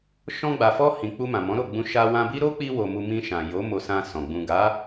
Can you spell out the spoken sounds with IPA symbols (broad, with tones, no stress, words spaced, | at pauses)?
ʃɔ̃˧ɡ͡ba˨fɔ˧ hĩ˨ k͡pu˧mã˨ mɔ̃˨˦ɾo˦˨ɡ͡bũ˧ ʃa˧ wã˧bi˦ ɾo˦k͡pi˧wo˨ mu˧ mĩ˧ʃã˨jo˨˦ mo˧sã˧sɔ̃˨ ɡ͡bũ˨ɡa˨˦